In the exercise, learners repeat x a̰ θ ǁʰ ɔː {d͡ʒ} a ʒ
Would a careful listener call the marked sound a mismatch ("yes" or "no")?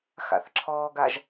yes